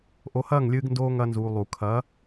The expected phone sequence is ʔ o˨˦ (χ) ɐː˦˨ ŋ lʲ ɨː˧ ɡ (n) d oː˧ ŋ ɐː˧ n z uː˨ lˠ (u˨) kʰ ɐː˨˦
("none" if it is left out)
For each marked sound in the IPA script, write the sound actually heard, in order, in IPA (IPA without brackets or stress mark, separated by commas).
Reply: h, n, u˨